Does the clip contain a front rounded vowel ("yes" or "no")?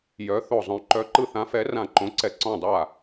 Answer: yes